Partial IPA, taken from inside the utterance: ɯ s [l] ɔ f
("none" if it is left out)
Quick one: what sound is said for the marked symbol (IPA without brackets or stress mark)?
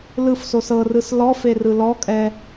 l